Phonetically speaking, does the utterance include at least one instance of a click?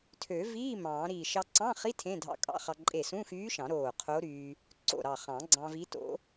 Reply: yes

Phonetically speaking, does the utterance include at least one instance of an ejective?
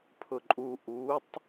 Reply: yes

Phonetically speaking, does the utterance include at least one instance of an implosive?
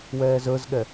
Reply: yes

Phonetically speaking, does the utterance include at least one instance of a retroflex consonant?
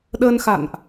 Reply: no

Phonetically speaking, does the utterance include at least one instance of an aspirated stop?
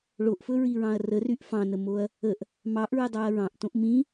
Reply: no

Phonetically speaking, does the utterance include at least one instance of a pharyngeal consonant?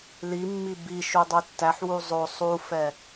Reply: yes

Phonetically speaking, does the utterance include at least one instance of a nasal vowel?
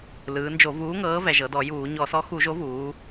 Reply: no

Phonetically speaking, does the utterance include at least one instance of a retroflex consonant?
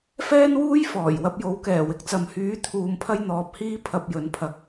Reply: no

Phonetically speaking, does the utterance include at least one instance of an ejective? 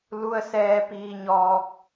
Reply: no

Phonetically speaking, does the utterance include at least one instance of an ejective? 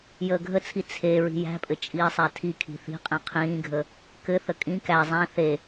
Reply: yes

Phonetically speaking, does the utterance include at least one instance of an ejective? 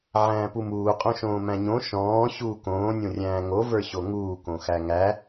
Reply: yes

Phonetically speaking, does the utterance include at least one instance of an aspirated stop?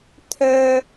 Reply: yes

